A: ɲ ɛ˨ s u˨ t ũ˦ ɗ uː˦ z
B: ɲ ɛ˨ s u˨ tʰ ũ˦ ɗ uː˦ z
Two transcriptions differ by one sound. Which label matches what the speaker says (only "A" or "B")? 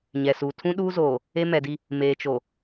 B